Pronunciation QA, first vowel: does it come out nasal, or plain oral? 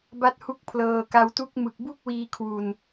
oral